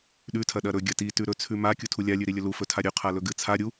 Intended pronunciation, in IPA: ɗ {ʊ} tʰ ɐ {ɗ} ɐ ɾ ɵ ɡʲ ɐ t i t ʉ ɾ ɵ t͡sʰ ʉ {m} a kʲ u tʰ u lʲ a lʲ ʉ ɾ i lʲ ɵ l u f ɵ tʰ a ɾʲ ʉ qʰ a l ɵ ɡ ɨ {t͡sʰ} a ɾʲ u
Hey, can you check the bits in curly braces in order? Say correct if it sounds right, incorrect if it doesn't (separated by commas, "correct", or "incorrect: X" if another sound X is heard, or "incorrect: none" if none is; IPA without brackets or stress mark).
incorrect: ʉ, correct, correct, correct